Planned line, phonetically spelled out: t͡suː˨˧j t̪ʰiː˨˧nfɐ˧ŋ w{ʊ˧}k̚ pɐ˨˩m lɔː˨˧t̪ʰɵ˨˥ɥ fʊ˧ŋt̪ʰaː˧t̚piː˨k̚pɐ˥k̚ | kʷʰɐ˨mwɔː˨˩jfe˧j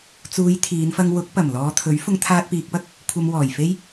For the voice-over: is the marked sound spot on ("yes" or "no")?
no